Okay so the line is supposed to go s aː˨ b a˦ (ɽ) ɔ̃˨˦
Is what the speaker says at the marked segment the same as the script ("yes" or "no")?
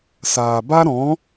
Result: no